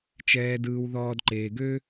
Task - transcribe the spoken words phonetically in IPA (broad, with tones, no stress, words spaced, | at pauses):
t͡ʃɛː˨ dɯː˨wðɔː˨dǃeː˨ɡø˦